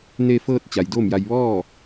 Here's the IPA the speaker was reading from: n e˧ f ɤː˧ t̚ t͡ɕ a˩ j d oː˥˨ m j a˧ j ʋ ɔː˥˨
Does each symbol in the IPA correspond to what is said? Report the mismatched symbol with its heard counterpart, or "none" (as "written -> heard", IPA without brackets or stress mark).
none